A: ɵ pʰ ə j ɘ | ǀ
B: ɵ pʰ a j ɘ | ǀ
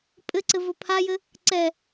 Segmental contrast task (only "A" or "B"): B